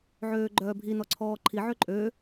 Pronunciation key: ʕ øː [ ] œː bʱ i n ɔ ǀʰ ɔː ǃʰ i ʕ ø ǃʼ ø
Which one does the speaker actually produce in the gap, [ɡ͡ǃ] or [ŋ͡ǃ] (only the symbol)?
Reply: ɡ͡ǃ